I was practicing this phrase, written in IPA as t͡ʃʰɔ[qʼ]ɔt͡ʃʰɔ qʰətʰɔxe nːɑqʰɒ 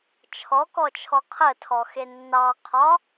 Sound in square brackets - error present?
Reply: yes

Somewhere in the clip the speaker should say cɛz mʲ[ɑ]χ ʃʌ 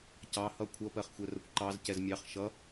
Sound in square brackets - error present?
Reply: no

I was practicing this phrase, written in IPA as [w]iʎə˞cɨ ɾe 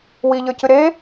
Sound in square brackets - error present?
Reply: no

